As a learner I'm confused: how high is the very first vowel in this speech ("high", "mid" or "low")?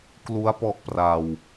high